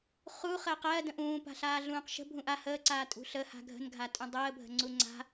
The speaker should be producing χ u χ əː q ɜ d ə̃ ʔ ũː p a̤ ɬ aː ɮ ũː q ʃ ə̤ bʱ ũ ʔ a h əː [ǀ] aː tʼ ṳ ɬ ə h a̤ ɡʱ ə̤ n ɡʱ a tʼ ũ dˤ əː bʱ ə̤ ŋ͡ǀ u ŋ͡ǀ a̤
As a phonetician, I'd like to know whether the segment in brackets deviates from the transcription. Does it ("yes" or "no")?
no